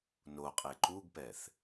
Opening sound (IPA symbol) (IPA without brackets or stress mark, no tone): n